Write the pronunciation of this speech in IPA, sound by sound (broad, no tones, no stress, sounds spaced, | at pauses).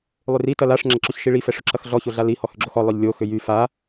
lˠ ʏ r i t ɐ l a ʂ ŋ͡ǁ ɐ ǁ ʊ ç ʃ i ɭ i f ɛ ʂ ʊ ǁ ɐ x ɮ ɔ ç o ɮ a l i h ɔ h ʏ ɡ͡ǁ o x ɔ lˠ œ ʎ lʲ o x ʏ j y f a